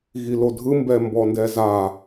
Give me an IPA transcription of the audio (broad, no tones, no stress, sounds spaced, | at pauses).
ɣ i l o dʱ ɯ m b ɛ m b ɔ n d ɛ z a